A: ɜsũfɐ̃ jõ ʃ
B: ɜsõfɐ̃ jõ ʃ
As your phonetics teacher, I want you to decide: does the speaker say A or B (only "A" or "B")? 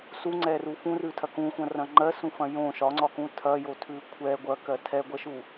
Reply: A